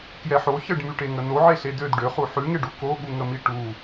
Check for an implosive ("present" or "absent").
present